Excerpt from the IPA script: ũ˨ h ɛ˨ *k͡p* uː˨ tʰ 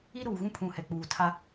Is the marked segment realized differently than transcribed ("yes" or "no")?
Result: no